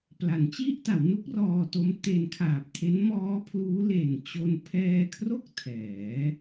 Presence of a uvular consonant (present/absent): absent